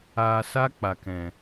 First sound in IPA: aː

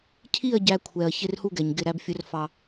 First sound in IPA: cʰ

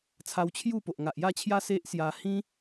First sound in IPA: t͡sʰ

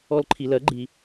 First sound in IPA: ɔ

